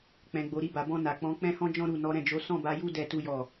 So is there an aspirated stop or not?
no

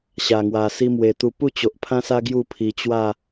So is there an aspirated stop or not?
yes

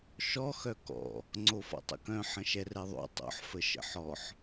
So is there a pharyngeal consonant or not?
yes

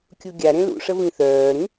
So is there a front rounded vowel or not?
yes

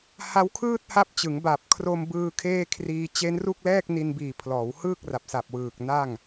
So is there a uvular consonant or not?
no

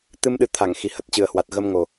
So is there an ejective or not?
no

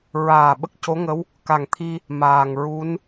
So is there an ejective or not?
no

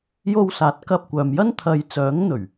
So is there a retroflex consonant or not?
no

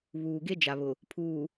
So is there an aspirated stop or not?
yes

